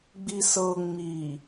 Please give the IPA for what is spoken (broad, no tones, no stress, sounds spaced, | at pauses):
ɡ͡b i s ɤ ŋ͡m i